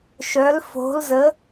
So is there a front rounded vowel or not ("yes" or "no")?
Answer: yes